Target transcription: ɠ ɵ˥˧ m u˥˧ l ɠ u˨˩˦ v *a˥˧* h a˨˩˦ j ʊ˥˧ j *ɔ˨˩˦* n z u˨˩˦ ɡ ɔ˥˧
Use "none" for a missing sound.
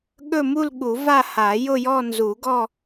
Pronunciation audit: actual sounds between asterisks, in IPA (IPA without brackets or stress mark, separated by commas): a˥˧, ɔ˥˧